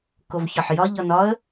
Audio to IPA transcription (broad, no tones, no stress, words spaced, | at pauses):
kovçɒħjɒ ʎɒnɒə̯